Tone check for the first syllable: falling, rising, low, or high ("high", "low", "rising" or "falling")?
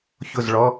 falling